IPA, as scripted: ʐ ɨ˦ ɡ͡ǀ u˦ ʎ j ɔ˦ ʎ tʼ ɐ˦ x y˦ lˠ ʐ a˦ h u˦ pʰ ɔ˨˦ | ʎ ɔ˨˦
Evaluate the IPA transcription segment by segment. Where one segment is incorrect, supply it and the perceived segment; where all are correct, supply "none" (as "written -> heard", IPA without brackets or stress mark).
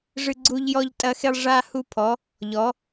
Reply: y˦ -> e˦